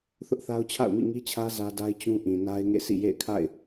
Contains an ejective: no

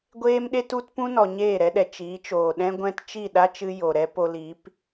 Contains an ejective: no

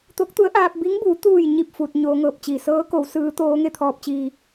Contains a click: no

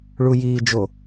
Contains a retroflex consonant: yes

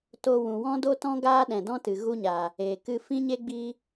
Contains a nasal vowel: yes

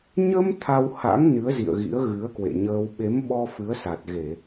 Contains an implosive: yes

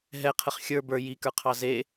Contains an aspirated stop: yes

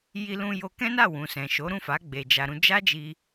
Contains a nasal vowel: yes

